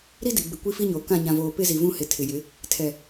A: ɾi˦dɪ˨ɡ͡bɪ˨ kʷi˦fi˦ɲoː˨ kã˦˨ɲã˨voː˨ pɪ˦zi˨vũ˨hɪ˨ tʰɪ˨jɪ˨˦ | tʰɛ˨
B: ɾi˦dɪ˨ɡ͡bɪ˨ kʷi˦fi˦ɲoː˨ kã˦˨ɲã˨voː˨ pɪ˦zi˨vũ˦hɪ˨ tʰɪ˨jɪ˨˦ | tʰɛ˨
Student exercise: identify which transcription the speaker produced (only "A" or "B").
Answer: B